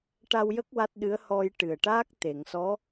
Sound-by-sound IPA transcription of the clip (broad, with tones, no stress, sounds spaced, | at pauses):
ʈ a˧ w j ə˦˥ k̚ w a˦˥ t̚ ɗ ɨ˧˥ ə̯ h ɔ˧ j ʈ ɨ˨˩ ə̯ ʈ aː˦˥ k̚ t̪ e˨˩˨ ŋ s ɔ˧˥